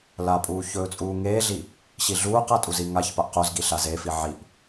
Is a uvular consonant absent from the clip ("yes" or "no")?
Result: no